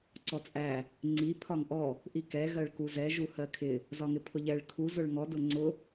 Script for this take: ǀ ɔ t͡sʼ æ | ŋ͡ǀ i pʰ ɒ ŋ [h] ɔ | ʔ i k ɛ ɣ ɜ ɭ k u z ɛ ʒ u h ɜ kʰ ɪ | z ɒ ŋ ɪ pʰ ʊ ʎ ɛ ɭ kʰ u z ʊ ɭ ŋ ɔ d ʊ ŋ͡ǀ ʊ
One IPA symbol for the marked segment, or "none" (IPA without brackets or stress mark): ʔ